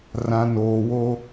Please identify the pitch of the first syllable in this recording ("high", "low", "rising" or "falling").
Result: low